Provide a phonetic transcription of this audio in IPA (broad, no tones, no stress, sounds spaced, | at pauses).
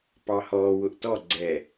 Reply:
p ɑ h ɔː w ʊ ʔ t ɔ ɡ͡ǀ ɛ